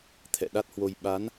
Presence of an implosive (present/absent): present